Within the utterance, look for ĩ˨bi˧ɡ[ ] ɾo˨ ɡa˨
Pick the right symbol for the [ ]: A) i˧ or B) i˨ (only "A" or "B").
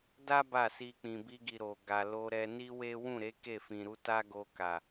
B